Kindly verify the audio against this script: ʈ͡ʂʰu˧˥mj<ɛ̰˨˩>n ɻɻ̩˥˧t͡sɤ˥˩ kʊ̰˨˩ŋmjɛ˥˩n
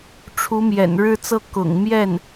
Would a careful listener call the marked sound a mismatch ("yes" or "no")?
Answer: no